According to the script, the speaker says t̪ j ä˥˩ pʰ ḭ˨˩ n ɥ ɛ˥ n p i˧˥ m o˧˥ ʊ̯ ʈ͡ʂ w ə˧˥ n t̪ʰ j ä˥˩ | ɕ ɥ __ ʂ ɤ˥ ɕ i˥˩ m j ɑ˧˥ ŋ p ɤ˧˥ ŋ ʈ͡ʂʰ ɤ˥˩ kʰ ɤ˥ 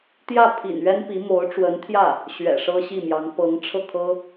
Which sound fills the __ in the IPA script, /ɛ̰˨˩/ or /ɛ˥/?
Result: ɛ̰˨˩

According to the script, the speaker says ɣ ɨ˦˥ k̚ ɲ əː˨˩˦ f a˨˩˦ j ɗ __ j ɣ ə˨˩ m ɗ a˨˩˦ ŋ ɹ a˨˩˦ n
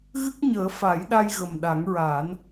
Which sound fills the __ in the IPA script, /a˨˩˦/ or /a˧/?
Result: a˧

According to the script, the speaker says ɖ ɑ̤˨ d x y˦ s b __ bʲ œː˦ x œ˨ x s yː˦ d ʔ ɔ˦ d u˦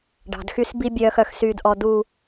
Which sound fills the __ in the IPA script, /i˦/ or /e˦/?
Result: i˦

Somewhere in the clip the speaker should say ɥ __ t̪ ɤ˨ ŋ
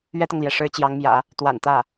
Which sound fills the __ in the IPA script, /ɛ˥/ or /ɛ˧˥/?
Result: ɛ˥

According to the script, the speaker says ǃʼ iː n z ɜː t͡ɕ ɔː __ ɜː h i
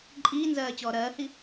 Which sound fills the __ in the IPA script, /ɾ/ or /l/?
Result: ɾ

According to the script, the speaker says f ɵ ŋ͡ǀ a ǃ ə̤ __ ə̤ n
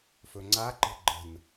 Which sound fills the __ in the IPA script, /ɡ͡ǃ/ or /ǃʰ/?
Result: ɡ͡ǃ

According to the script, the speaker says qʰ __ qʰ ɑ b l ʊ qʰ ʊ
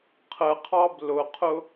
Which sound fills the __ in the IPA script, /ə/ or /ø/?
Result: ə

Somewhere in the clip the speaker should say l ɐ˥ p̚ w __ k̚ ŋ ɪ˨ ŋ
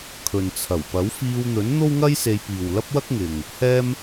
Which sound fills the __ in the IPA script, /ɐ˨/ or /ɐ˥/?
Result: ɐ˥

